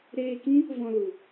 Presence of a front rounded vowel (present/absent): absent